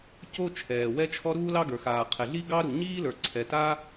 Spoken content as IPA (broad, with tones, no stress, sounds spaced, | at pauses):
c o˥ t͡ʃʰ ɛː˩ w ɛ˥ t͡ʃʰ ɔ˥ ɾ uː˥ l ɑ˥ ɡ ə˞˩ x aː˩ qʰ ɛ˩ ɮ i˥ ɡ ɑ˥ ɾ u˩ ɲ iː˥ l ə˞˩ ǀʰ ɛ˩ t aː˥